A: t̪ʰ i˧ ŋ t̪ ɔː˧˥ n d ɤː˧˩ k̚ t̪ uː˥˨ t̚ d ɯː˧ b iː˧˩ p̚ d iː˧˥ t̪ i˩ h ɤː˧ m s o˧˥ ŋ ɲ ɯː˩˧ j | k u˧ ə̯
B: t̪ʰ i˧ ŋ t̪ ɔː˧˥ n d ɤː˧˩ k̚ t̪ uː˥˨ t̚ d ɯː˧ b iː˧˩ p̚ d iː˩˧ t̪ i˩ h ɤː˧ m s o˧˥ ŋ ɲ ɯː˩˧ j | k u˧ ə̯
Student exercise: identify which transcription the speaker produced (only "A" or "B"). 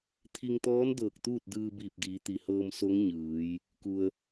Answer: B